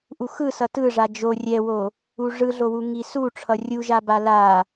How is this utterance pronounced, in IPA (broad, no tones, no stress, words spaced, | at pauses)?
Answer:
ʔuxɯsʌ tɯ ʐad͡ʒo rʲɛwo | uʐɯɮowu ŋisuʈ͡ʂʰʌ rʲuʒa bala